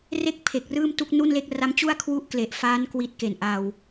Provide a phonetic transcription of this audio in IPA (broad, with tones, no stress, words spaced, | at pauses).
re˥˩k̚pʰe˨˩k̚ rɯː˥˩mtu˥˩k̚ nu˥˩nle˥˩k̚ ra˦˥mt͡ɕu˥˩a̯ kʰwu˥˩ʔ kle˨˩ʔ fa˦˥n kwi˦˥t̚ke˨˩nʔa˧w